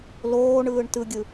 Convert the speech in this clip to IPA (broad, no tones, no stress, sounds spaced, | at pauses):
l oː ɳ ɯː ɳ t ɯ ɡʲ ɯ